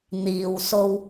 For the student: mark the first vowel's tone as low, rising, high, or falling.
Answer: low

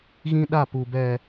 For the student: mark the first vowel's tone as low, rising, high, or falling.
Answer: high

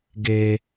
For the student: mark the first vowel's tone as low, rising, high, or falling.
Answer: high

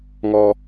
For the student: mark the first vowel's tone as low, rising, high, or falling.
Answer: high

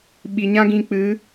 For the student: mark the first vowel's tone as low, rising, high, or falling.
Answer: low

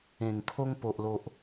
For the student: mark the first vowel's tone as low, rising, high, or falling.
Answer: low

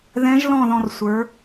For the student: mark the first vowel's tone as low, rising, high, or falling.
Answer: rising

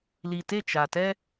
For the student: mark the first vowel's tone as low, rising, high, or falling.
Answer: low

